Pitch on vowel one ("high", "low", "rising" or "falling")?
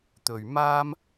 low